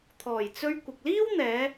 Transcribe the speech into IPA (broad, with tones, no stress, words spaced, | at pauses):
t̪ʰɔː˨˩jt͡sɵ˧ɥ kʷɪ˨k̚liː˥wn̪ɛː˨˧